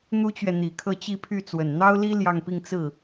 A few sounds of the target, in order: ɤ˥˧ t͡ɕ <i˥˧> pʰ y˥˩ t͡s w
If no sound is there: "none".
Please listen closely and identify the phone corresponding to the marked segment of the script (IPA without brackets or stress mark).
i˥˧